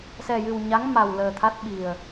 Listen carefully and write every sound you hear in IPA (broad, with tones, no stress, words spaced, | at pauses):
sɛ˨˩jɨ˨˩wɲa˧˥ŋ ma˨˩w ləː˨˩ t̪ʰa˦˥t̚ɓi˨˩ə̯